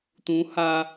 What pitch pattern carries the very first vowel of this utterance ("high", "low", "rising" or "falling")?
rising